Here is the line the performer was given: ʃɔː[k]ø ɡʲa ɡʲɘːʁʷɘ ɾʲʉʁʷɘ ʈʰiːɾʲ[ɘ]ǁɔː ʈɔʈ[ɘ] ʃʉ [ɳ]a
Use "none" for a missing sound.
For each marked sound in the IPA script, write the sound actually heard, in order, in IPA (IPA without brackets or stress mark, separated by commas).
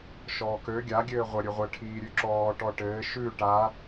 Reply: k, ʉ, ɘː, ʈ